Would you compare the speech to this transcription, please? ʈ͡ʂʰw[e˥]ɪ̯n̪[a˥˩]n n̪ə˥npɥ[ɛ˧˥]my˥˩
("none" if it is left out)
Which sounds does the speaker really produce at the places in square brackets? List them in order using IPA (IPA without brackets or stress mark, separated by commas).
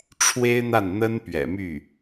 e˥, a˥˩, ɛ̰˨˩